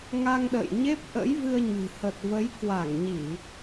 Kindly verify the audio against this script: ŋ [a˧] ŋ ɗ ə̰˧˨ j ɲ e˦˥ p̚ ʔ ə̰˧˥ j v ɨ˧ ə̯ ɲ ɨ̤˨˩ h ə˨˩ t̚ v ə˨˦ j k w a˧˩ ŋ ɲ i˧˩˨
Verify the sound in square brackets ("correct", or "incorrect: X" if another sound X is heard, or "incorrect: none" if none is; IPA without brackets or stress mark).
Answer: correct